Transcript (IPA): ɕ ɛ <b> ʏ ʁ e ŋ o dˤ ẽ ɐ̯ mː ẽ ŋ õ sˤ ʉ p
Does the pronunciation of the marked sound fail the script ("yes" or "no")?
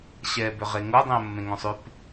no